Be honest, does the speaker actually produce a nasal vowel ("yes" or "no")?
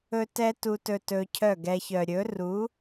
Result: no